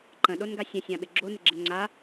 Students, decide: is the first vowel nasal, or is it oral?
nasal